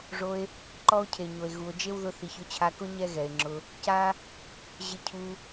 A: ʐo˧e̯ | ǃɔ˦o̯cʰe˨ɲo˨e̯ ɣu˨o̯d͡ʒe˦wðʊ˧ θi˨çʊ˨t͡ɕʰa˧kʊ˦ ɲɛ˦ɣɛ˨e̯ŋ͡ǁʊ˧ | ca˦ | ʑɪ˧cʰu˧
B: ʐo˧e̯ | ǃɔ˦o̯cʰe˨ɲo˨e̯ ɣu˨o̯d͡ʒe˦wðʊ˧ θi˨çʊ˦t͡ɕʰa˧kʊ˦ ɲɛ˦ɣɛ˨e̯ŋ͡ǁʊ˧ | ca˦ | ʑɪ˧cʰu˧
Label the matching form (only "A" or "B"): B